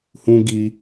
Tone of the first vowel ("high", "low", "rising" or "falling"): high